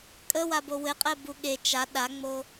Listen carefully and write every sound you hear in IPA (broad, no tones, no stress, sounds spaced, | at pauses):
kʼ ə w a b o w ɘ qʼ ɛ b u ɠ e t͡ʃ a ɗ a ŋ͡m o